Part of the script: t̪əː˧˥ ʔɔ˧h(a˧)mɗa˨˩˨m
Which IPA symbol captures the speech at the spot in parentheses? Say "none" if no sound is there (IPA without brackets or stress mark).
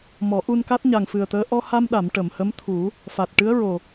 a˧